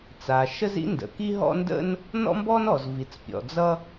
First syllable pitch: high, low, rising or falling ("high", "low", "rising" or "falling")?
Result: low